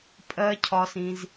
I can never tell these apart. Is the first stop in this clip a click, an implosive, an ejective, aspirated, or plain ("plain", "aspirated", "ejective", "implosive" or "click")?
ejective